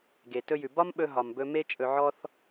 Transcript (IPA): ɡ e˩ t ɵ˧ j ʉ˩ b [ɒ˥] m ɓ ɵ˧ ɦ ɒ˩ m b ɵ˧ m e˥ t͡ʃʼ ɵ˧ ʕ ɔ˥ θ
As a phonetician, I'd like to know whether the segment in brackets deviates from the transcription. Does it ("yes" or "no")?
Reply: no